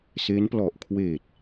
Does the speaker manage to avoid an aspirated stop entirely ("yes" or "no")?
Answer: no